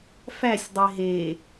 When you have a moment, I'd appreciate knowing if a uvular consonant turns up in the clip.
no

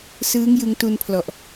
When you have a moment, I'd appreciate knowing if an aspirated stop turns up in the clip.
yes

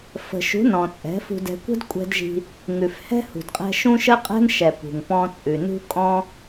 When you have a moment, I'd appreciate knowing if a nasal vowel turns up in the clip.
yes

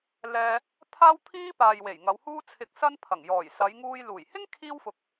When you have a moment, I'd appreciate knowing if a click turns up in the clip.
no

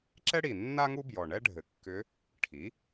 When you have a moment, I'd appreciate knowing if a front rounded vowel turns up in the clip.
yes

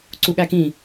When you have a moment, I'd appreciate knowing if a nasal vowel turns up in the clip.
yes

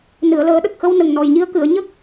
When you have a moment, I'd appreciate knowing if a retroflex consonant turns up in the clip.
no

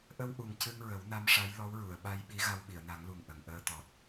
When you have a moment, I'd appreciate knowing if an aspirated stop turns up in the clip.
no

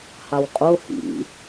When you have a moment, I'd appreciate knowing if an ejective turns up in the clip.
yes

